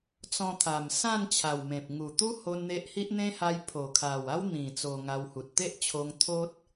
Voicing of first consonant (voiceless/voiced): voiceless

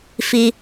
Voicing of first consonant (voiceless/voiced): voiceless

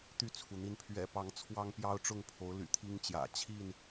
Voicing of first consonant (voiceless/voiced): voiceless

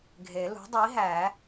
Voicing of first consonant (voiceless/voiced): voiced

